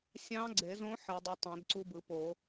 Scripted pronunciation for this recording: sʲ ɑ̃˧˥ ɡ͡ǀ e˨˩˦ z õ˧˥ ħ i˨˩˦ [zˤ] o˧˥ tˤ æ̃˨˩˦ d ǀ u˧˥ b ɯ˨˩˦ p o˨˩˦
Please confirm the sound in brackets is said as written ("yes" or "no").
no